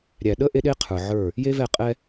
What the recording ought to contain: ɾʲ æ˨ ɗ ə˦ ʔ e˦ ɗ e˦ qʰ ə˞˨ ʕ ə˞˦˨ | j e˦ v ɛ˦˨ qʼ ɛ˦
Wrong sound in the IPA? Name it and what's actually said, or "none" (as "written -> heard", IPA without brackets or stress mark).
none